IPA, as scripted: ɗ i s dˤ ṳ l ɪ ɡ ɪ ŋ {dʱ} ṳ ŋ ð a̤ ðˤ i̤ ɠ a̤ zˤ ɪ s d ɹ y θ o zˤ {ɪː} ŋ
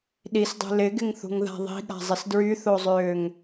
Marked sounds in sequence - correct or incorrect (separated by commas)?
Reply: incorrect, incorrect